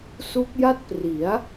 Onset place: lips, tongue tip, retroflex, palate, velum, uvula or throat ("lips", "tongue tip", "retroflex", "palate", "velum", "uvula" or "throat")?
tongue tip